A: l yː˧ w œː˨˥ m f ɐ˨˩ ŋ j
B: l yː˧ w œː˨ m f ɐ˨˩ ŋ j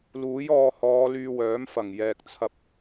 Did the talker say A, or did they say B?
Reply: A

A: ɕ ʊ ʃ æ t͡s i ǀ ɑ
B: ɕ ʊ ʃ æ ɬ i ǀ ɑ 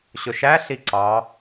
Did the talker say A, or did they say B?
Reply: B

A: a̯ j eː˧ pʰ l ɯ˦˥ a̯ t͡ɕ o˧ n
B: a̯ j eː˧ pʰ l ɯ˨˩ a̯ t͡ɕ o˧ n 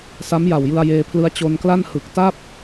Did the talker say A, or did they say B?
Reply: A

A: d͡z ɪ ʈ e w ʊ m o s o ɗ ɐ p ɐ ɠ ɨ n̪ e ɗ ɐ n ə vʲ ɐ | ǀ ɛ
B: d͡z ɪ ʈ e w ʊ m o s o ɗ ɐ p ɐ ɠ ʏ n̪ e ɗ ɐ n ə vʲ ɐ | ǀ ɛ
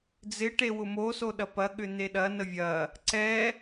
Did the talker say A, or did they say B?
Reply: B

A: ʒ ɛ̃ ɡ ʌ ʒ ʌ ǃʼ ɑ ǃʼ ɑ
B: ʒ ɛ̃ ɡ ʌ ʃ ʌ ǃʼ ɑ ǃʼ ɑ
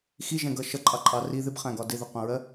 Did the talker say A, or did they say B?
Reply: B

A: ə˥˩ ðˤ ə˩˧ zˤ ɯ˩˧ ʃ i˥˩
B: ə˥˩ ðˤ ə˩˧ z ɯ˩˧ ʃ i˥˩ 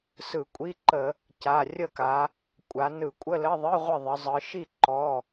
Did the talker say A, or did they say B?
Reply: A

